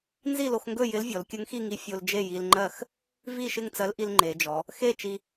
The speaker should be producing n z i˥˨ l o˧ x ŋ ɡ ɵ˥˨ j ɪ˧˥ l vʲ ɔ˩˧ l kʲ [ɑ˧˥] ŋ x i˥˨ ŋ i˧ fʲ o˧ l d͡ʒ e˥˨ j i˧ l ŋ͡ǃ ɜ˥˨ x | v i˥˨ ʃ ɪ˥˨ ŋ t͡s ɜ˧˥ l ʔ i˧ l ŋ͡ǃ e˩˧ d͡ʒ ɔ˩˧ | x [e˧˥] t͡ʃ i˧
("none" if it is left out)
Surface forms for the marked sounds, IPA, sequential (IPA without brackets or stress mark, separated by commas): ə˧˥, e˥˨